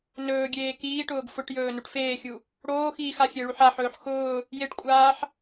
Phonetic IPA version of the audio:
n ɵː ɡʲ eː k iː ʈ ʊː ɡ f ʊ ʈ j ɵː n u ʈ f eː xʲ u | ɽ oː x iː x a xʲ e ɭ u ħ a ħ ɵː ħ x ʊː | j e ʈ kʷʼ aː ħ

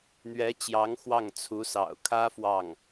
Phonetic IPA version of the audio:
n̪ ɥ ɛ˧˥ t͡ɕ j ɑ˧˥ ŋ x w ɑ˥˩ ŋ t͡sʰ u˧˥ s ɑ̰˨˩ ʊ̯ kʰ ä˥ f w ɑ˥˩ ŋ

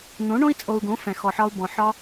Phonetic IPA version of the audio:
n̪ õ˨˦ ɳ õ˦ i̯ t͡sʼ o˨ u̯ ɡ õ˨˦ f ɛ̃˨ x ɔ˨ ħ ɒ˧ u̯ b ɔ̃˨ ħ ɒ˧

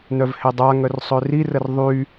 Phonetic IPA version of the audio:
n œ v h e dˤ a ŋ œ r sˤ ø r i r ə r ðˤ y

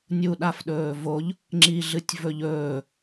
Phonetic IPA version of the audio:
nʲ u ɗ a f ɗ ɵː v o ʎ | ŋ͡ǁ i ɮ ɨ tʲ v ɵ ʎ ɵː

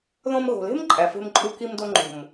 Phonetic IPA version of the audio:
ð õ˧ m ɣ o̤˨ l e̤˦ m ǃʼ æ˨ f e̤˧ m ǃʼ u˧ k i˧ m d o˧ ŋ͡ǃ o̤˨ m

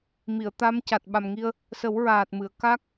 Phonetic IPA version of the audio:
m i˨˩˨ ə̯ t̪ a˧˥ m c a˨˩ t̚ ɓ a˨˩ m ŋ i˧ ə̯ | s ə˨˩˦ w ɹ aː˨˩ t̚ m ɨ˨˩˨ ə̯ k a˦˥ k̚

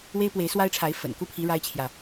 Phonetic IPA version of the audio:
w e˦ ɪ̯ p w e˨˦ ɪ̯ s w a˦ ɪ̯ ʈ͡ʂʰ a˨˦ ɪ̯ f ə̰˨˩ n k u˦ pʰ i˨˦ ɻ a˦ ɪ̯ t͡ɕʰ j ä˨

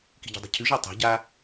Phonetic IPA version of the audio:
k i̤ ɟ i̤ dˤ i̤ cʰ ʉ ʒ a tˤ a̤ ɟ a

